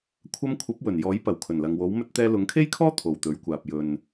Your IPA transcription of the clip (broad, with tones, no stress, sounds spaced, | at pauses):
kʷʰ ɐ˧ m kʷʰ ɐ˨˥ p̚ w ɵ˨˩ n j ɔː˨˥ j p ɐ˨˩ w kʰ ɵ˨˩ n l ɐ˨ ŋ w o˨˥ w m ɵ˧ t̚ t̪ ɛː˧ l ʊ˨˥ ŋ kʰ e˥ j kʰ ɔː˥ t̪ʰ o˨ w t̪ ɵ˨˥ ɥ kʷ aː˨ p̚ j ɵ˨ n